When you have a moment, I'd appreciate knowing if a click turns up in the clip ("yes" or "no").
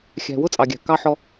no